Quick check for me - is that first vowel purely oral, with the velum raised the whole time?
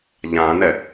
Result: no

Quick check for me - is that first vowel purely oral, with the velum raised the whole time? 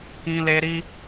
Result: no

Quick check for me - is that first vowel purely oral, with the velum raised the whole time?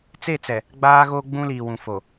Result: yes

